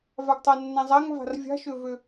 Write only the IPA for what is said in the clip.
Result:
v a ɡ tˤ a nː ã zˤ a ŋ v a̤ r vʲ a̤ ʃ ø v ø

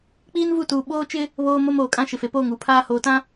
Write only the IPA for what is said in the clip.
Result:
k͡p iː˦ n v u˦˨ t uː˨ ɓ oː˦ t͡ʃ ɪ˦ | β oː˦ m o˦ m oː˨ kʼ ã˦ ʃ ɪ˨ f e˨ p oː˦˨ ŋ uː˨ pʰ aː˦ h oː˨ t ã˦

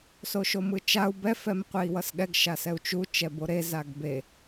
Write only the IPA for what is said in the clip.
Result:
s o ʃ o m ɯ t͡ʃ a u̯ b ɛ f ɛ m qʷ e i̯ w ʌ s ɠ ɛ ɡ ʃ a s ɛ u̯ t͡ʃ u t͡ʃ ɛ b o ɾ e z a ɡ b e

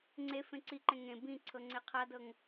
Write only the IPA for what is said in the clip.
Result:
ŋ͡ǀ e f ẽ ǀ i ǃ ẽ ŋ ẽ b ĩ ǀʰ ɤ ŋ͡ǀ e qʰ a d ɤ ŋ

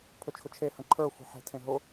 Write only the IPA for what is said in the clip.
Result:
pʰ ɵ t͡ʃʰ ʊ t͡ʃʰ e h ə̃ ǃʰ ə˞ xʷ e̤ ħ e̤ tʰ ẽ ɦ ʊ

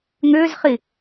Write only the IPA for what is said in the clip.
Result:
ŋ ʏː z χ i

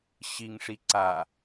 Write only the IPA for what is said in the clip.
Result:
ɕ i ŋ ʂ i ǀ a

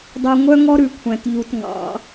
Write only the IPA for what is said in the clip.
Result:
dˤ œ˨ ŋʷ œ˦ ŋ ɔ˦ ɾ ʉ˨ kʷʰ æ̃˨ t ʎ u˨ t ŋ ɑ̰˨˦

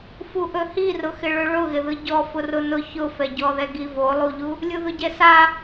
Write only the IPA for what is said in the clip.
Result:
f u ʔ ɵ h i r ʊ x ɪ ɭ ɵ ɭ ʊ ɣ ɪ ð ɯ ɟ ɔ f ʊ r ʊ n ʊ ç ʊ f ɛ ɟ ɔ ð ɛ ɡ i v o lˠ u ʎ u | lʲ u ð ʊ ɟ ɛ s a

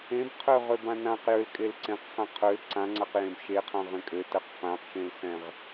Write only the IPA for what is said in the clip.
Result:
ẽ b qʰ ø ʁ ø b ã n ã q j ø l kʼ e l ǀ ẽ q χ ã qʰ ø l ǀ ã ŋ͡ǀ a q j ẽ b ʃ e qʰ ã ʁ ẽ kʼ ø t ɜ q f ã q ʃ ẽ l s ɛ̃ ʁ

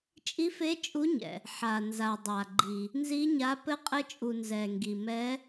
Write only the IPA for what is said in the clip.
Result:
t͡ʃʼ i˨˦ f e˨˦ t͡ʃʼ u˨˦ ɲ ɛ̰˩ | ħ a˩ n z a˩ dˤ a˩ ɡ͡ǃ i˩ | n z i˨˦ ɲ a˨˦ p ɘ˨˦ qʼ ɘ˨˦ t͡ʃʼ u˩ n z ɛ˩ ŋ ɡ i˩ m ɛ˨˦

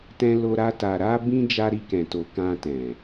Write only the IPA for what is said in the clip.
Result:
t ɛ̃˦ l o˦ ɾ a˦ t a˧ ɾ a˦ b ĩ˦ d͡ʒ a˦ ɾ i˦ k ɛ̃˧ t o˧ k ã˧ t ɛ̃˨

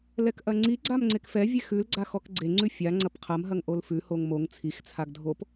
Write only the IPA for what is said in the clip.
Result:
l ɛ k ʔ ɐ ŋ͡ǀ i ɡ͡ǀ a m ŋ͡ǀ e k f ɛ vʲ e x ʉ l ɡ͡ǀ a x ɔ k ɡ͡ǀ e ŋ͡ǀ ʉ fʲ a ŋ͡ǀ ɐ p qʰ ɐ m ɦ ɐ ŋ ʔ o l f ʉ h o ŋ m o ŋ t͡sʰ i x t͡sʰ a ɡ dʱ o p

